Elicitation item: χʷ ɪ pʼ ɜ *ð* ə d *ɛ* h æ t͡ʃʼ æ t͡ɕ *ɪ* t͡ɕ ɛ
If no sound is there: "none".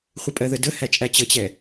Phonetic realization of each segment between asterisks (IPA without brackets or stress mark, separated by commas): ð, ə, ə